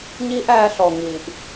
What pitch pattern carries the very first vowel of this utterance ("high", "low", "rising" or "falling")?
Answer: high